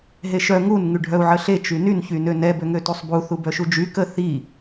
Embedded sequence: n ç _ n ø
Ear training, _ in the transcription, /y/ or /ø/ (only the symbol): y